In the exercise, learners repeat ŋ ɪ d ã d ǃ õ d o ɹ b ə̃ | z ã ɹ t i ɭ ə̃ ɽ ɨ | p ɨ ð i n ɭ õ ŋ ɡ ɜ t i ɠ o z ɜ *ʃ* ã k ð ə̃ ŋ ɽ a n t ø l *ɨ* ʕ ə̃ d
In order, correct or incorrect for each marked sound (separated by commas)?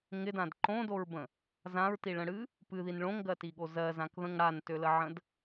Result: incorrect, incorrect